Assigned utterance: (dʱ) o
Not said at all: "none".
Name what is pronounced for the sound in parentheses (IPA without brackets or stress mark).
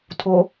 tʰ